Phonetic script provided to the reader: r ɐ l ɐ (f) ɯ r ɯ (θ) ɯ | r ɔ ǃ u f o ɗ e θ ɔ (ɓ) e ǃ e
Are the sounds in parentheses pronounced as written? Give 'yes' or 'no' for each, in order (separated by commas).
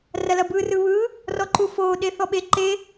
no, no, yes